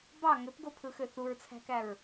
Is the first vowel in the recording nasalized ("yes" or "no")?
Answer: no